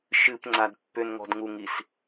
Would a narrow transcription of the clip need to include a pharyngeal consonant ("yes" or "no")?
no